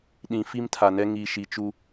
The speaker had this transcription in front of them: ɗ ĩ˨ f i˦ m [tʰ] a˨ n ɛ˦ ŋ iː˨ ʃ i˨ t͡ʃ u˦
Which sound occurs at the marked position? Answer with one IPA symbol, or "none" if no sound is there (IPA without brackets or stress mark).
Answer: tʰ